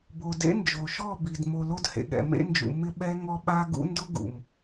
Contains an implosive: yes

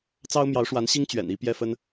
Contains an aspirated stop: no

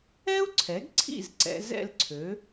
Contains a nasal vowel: no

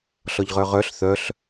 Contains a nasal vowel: no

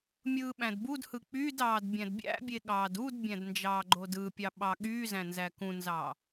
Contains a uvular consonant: no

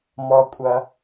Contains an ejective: yes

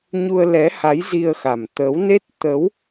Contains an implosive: no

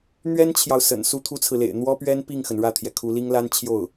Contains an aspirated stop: yes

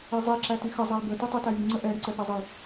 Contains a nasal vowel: no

